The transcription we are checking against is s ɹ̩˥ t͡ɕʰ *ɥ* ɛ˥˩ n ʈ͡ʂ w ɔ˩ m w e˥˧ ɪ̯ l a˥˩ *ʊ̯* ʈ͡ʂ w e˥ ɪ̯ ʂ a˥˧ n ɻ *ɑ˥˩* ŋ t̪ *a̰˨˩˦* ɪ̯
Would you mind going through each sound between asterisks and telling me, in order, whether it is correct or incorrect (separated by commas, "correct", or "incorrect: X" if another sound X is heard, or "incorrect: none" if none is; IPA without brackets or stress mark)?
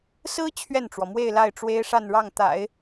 correct, incorrect: ɪ̯, correct, correct